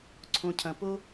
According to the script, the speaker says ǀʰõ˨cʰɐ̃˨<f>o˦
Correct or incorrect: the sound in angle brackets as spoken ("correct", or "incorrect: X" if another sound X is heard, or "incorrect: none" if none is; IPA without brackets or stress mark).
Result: incorrect: p